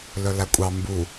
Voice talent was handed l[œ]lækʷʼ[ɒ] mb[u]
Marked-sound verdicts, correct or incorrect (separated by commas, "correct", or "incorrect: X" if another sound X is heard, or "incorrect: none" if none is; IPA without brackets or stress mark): correct, incorrect: ɑ, correct